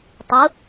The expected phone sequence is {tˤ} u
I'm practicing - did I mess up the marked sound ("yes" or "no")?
no